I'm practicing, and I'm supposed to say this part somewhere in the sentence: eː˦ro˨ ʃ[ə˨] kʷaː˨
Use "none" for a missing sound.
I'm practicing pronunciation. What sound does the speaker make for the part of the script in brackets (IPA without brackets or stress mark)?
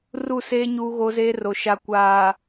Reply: a˨